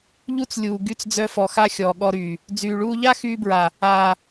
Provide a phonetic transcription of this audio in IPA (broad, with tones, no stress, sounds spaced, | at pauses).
ʎ u˦ t͡s lʲ uː˨ ɡ y˧ t͡s d͡z œ˧ f ɔ˨ x a˦ xʲ ɔː˨ ɠ ɔ˧ ɾ yː˨ | d͡z yː˨ ɭ uː˧ ʎ a˦ x yː˧ b ɹ a˨ | aː˨